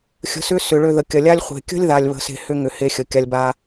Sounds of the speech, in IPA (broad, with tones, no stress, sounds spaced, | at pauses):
xʲ ə̤˨˦ s ʏ˦ s ʏ˨ ɭ ø˧ ð ə˨ kʲ ɐ˨ lʲ a˦ lʲ χʷ e̤˨ kʲ ə̤˦ lʲ ð a˨ lʲ β ə̤˧ s e̤˧ h ʏ˦ ŋ ʏ˧ h e˦ xʲ ə˨ kʲ a˧ lʲ b a˧